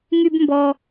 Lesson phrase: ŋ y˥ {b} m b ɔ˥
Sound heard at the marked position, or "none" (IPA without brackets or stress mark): b